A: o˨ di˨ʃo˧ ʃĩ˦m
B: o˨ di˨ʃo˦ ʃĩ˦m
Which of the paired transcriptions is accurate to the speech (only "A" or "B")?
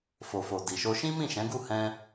A